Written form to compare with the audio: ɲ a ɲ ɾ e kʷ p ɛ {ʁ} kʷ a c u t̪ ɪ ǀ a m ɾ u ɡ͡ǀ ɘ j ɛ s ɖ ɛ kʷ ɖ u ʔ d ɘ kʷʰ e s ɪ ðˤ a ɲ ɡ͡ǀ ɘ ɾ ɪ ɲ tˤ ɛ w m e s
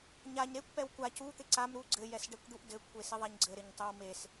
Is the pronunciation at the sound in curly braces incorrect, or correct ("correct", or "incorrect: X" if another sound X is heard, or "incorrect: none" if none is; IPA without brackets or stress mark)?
incorrect: w